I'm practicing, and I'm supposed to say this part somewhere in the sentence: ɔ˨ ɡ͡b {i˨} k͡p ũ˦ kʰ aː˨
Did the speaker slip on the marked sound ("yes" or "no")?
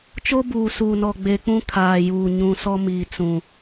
yes